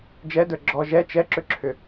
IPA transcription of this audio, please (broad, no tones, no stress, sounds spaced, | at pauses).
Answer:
d͡ʒ ɛ d ə˞ ɡ͡ǁ ɔ ʒ ɛ t͡ʃ ɛ ǁ ʏ ǁʰ ʏ